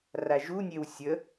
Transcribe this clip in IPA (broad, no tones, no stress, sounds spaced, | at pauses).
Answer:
r a ʒ u nʲ e w sʲ ə